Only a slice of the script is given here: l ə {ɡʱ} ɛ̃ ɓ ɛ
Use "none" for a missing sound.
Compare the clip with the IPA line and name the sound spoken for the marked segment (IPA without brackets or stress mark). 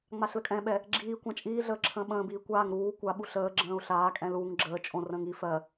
kʼ